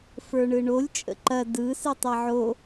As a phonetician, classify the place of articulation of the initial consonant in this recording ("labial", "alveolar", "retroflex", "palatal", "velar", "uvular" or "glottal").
labial